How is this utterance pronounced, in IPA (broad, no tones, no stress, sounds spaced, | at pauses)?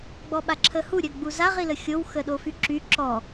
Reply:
ɡ͡b ɔ ɓ a ǁʰ ə h u ɾʲ œ ɡ͡b u z a ʁ i l ə xʲ o w x ə ɗ o f y ǁ y ǁ ɔ